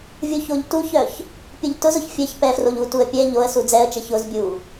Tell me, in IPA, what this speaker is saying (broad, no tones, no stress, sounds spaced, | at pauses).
vʲ u ç o ʎ t u ç œ ç | pʲ ʊ ʎ t ʊ z ʊ ç fʲ ɛ ç p ɛ f r o ʎ u t u ə̯ pʲ ɛ ʎ o ə̯ s u d͡z ɛ ə̯ t͡ʃ ɛ ç ʊ z bʲ u